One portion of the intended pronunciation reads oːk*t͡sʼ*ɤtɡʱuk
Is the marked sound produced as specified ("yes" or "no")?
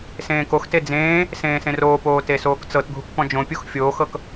no